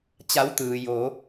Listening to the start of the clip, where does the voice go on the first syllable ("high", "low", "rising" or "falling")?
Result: rising